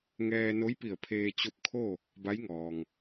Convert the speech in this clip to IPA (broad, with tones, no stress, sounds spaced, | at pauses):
ŋ ɛː˧ n o˧˥ j p i˧˩ ə̯ pʰ eː˧ t͡ɕ o˧˥ p̚ kʰ o˥˨ | b a˧˥ j ŋ ɔː˩ ŋ